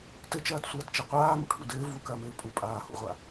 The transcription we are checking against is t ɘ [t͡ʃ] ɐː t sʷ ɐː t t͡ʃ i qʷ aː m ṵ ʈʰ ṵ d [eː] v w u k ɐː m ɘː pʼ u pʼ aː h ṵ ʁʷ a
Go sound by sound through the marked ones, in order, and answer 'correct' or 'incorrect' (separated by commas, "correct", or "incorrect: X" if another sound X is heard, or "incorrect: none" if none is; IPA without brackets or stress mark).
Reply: correct, incorrect: ɘː